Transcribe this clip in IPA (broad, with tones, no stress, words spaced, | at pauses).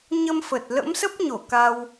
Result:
ɲə˧mfə˨˩t̚ lə̰˧˥msə˦˥p̚ɲo˧˩ ka˧w